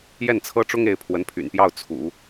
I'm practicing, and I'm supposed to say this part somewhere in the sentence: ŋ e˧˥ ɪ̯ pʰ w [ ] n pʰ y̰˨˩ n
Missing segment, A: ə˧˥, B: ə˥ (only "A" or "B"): A